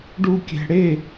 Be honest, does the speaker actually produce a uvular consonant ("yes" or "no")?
no